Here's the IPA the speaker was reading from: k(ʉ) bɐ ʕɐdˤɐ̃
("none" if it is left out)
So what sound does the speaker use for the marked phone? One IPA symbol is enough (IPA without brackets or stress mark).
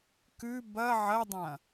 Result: ʉ